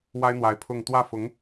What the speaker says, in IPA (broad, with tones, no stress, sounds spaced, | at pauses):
w a˥ ɪ̯ n̪ w a˧˥ ɪ̯ pʰ ʊ˥˧ ŋ t̪ w ä˥˩ f ʊ˧˥ ŋ